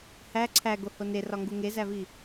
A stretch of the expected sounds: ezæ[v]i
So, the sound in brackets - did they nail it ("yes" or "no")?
yes